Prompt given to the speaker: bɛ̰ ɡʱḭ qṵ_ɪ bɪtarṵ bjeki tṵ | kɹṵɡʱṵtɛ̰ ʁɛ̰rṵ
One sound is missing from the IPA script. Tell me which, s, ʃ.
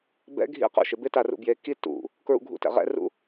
ʃ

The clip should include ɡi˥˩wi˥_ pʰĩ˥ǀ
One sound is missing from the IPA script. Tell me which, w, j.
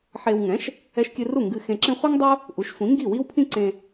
w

